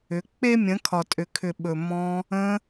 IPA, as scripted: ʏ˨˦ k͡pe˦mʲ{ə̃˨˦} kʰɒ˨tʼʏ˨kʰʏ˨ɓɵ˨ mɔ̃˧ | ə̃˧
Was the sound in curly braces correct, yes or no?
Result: yes